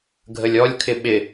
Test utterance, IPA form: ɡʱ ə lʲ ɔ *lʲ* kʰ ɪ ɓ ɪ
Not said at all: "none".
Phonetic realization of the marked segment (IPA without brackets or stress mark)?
lʲ